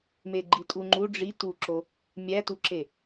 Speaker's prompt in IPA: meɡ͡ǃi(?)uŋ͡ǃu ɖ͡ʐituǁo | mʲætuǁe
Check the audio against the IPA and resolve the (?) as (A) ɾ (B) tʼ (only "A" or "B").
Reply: B